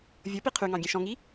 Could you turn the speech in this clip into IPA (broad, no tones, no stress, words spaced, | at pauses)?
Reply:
vʲɤpi qʰyŋɑ̃ ɡʲɛ̃ʃɔ̃ŋi